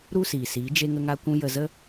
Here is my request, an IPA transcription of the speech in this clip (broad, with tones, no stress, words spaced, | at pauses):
ɾu˦siː˨siː˨˦ d͡ʒe˧ŋə˧ŋa˧kʷũ˧ jə˧zə˦